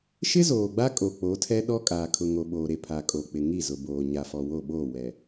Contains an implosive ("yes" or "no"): yes